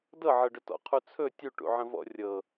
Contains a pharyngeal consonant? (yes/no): yes